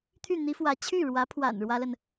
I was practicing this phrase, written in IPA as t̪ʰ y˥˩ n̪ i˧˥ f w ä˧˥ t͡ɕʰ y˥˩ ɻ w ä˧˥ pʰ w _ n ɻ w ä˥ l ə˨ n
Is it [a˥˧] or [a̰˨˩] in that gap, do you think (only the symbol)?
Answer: a̰˨˩